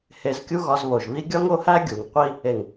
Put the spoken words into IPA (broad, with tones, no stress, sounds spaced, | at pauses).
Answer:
h e˧ z kʲ u˦ ɣ ɒ˧ z β o˨ ʒ β i˦ ɡʲ ɒ˦ ŋ o˦ h æ˦ ɡʲ u˨ ŋ qʷ i˦ | e˨ ŋ